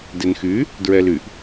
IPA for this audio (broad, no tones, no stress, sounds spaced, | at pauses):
d e n x y | d ɹ ɛ l y ʔ